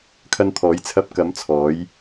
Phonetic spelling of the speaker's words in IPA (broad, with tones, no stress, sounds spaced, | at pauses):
kʰ ɐ˧ n t̪ʰ ɔː˨˧ j t͡sʰ ɐ˧ p̚ k ɐ˨˧ m t͡sʰ ɔː˨˧ j